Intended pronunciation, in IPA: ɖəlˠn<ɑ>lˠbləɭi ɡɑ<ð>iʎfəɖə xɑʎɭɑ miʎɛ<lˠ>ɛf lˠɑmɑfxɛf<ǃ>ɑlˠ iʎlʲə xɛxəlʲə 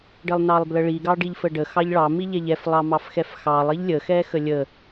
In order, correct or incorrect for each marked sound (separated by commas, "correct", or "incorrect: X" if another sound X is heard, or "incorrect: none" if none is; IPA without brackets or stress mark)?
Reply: correct, incorrect: ɖ, incorrect: ʎ, incorrect: x